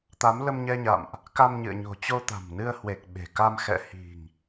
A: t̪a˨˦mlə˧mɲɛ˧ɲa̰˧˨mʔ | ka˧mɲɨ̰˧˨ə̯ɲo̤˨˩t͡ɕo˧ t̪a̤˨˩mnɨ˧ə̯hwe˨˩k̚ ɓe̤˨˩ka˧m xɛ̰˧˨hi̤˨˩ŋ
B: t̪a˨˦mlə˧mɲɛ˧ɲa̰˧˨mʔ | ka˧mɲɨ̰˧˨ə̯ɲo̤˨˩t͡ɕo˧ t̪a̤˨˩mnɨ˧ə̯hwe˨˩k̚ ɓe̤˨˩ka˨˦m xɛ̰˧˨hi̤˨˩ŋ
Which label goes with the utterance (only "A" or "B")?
A